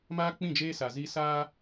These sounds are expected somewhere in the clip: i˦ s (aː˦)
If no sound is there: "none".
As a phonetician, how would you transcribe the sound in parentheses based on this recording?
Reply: aː˦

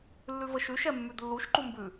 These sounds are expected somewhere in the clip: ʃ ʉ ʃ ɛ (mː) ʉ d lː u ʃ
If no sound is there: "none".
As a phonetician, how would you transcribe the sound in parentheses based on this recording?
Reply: mː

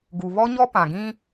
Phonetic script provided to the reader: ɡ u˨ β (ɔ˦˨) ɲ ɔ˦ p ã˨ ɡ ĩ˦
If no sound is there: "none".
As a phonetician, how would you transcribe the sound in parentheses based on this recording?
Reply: ɔ˦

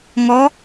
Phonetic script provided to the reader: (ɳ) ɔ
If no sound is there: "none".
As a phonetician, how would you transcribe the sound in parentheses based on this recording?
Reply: ŋ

